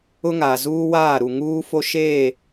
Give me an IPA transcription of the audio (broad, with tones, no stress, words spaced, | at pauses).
ʊ˦ŋa˨zuː˦waː˦˨ ɾu˨ŋuː˦fo˦ ʃeː˦˨